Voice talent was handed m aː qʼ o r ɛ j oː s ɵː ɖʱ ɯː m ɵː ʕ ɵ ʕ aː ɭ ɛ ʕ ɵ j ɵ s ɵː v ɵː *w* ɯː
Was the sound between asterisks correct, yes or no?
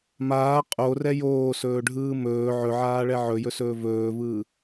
no